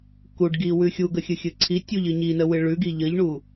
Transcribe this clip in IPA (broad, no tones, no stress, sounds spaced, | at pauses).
k u ɖ ɡ i w ʉ xʲ u ɡ ə xʲ ɨ xʲ ɨ ǀʰ i tʲ u ʎ ɨ ɲ i n ə w ɨ ɭ ʉ ɡ i ʎ ə ʎ ɳ u